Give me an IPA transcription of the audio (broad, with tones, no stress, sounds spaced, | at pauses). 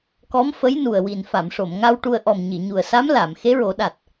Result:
k ɔ˧˥ m f ə˧˥ j n u˨˩ ə̯ w i˨˩ n f a˨˩˨ m ʂ o˨˩˨ m ŋ a˧ w ʈ u˧ ə̯ ʔ ɔ˨˩ m ɲ i˨˩˨ ɲ u˨˩ ə̯ s a˧˥ m l a˨˩˨ m x e˧˥ ɹ o˨˩˦ ɗ a˨˩ t̚